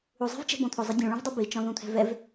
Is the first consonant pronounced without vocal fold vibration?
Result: no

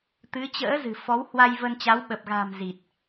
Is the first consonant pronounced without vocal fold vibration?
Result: yes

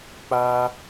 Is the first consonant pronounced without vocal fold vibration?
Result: yes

